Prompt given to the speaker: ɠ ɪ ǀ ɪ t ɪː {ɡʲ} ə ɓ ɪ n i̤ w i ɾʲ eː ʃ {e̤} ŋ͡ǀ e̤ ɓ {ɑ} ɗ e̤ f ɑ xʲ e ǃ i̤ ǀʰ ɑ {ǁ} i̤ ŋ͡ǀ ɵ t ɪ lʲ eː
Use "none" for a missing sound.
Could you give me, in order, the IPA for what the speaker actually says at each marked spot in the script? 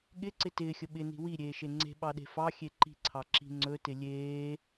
xʲ, e, ɑ, ǁ

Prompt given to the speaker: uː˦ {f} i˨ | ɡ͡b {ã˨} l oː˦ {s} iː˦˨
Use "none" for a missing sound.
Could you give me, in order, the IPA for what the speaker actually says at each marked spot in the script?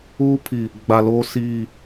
pʰ, a˨, s

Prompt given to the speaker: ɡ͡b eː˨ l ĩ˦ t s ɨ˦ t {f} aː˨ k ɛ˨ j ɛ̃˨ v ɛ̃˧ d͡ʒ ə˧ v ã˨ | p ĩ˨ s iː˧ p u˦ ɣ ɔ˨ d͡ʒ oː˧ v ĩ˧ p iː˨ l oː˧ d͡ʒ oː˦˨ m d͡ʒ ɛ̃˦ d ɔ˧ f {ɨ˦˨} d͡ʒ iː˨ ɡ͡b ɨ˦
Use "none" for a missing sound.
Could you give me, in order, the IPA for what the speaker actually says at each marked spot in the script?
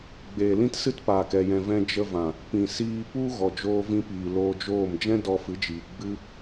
p, ɨ˨˦

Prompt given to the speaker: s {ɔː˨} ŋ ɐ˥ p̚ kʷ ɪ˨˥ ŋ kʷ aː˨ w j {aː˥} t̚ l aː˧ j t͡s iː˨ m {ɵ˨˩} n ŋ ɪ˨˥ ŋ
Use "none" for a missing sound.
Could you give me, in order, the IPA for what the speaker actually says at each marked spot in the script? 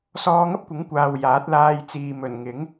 ɔː˧, aː˨˥, ɵ˨˩

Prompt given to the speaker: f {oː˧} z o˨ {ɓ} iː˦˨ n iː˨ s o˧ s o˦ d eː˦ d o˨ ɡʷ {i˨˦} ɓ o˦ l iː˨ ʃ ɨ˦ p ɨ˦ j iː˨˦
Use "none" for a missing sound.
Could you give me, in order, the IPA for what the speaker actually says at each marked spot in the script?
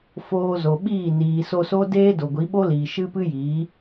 oː˧, ɓ, i˨˦

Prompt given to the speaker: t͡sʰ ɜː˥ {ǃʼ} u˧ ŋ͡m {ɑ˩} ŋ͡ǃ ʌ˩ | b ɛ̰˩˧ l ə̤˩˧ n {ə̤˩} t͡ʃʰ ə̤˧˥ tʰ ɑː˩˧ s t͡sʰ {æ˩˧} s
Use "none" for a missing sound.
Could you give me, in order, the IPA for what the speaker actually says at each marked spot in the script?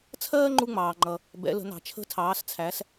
ŋ͡ǃ, ɑː˩, ɑ̤˩, æ˩˧

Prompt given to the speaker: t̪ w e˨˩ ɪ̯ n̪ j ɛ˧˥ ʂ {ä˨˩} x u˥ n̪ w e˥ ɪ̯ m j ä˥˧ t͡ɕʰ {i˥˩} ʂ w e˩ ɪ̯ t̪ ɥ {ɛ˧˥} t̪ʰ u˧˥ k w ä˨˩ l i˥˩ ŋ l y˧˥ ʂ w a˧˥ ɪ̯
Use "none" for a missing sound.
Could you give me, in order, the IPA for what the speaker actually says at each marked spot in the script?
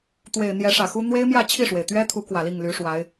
ä˨˩, i˥˩, ɛ˥

